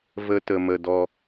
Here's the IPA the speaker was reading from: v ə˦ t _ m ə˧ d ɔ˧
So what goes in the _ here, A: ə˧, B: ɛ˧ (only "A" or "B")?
A